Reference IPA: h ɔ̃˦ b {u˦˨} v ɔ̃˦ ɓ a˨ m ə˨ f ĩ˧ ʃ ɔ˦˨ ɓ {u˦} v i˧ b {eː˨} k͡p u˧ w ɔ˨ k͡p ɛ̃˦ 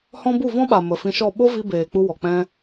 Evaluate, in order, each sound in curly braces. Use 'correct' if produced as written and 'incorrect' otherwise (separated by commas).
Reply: correct, incorrect, correct